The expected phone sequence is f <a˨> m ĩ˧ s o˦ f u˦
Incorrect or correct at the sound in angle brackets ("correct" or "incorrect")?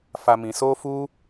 incorrect